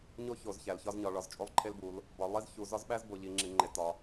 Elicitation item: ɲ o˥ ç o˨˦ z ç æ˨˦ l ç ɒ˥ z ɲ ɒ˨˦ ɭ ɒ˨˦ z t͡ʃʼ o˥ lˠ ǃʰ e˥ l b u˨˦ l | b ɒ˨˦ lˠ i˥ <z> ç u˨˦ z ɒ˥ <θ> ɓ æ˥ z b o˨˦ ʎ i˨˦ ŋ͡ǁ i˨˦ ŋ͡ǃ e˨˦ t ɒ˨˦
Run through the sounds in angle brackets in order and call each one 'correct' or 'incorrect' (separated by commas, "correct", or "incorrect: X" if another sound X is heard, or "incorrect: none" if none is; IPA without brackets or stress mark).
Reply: correct, incorrect: z